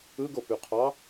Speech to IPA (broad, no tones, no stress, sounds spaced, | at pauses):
ɯ ɡ o p y qʰ ɑ